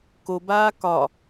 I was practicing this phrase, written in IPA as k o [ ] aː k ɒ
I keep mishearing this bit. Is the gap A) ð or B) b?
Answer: B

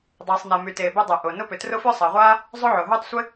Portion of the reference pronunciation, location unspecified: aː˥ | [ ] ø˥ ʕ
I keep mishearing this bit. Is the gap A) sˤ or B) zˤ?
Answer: B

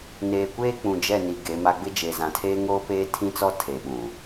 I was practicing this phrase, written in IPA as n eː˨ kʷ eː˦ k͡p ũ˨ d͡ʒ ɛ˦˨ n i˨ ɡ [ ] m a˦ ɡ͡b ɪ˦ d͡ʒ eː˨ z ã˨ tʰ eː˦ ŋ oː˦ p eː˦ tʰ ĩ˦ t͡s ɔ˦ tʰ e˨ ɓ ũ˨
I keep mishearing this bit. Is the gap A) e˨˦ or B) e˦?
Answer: A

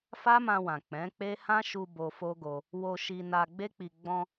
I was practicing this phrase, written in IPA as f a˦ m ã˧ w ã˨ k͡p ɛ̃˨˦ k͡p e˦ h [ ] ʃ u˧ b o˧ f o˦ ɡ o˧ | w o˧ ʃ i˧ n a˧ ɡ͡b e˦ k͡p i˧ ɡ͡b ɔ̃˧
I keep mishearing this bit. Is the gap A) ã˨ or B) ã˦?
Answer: B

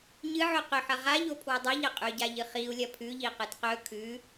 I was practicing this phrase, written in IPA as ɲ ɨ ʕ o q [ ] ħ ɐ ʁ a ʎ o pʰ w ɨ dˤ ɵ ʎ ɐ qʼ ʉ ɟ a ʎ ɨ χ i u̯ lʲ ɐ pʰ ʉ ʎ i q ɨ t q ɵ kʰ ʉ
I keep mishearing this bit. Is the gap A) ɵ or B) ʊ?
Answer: A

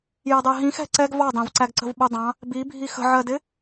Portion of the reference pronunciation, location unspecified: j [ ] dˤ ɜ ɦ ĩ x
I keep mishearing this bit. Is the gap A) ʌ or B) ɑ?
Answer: A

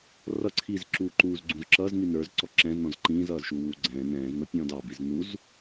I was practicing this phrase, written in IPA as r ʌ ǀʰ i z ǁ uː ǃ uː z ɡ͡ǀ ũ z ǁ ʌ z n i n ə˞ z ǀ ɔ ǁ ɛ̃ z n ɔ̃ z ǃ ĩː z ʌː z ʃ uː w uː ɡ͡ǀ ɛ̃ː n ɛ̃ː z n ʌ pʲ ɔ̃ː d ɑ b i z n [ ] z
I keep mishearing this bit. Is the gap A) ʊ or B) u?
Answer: B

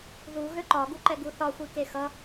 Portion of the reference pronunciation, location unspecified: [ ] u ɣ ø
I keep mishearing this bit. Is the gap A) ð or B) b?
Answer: A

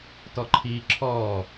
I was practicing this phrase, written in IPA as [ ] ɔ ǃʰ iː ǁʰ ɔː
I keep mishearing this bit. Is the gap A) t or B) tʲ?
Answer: A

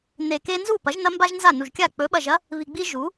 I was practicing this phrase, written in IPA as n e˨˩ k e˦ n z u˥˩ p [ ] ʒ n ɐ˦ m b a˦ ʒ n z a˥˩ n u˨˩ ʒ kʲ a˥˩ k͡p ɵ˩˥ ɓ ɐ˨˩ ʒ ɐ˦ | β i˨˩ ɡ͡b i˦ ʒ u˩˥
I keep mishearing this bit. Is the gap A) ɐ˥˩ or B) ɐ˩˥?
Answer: B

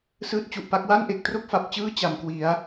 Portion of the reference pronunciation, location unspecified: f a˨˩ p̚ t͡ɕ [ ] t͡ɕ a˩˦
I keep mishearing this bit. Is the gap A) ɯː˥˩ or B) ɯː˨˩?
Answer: A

